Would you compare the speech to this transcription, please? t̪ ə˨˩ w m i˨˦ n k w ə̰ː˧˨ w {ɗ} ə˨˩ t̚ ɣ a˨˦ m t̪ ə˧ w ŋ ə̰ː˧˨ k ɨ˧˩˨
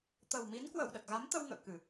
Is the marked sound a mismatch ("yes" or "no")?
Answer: no